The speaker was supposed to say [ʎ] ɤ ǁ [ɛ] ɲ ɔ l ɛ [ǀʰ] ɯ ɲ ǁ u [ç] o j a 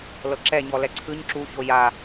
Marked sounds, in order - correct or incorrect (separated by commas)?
incorrect, correct, correct, correct